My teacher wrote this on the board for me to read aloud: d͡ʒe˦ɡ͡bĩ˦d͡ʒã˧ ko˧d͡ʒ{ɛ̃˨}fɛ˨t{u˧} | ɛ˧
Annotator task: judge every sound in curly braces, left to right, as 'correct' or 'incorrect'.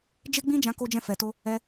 incorrect, incorrect

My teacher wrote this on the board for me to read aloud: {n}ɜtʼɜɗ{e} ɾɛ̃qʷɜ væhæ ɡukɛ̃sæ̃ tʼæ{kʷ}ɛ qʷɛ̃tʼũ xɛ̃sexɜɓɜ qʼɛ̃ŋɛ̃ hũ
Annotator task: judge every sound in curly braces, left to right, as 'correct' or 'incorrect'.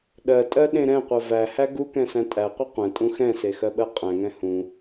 incorrect, incorrect, incorrect

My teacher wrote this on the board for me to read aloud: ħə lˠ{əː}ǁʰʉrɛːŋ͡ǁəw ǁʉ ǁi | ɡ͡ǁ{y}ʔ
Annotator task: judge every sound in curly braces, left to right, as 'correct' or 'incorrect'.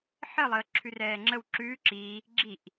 correct, incorrect

